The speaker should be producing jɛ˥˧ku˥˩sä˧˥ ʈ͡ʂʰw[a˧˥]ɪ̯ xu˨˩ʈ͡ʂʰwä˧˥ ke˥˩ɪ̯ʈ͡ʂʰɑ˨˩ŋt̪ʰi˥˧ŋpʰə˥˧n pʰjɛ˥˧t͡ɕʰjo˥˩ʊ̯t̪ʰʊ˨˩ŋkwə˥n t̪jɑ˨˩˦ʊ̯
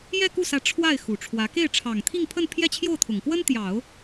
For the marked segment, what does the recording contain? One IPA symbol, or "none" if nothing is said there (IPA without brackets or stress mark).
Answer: a˥˩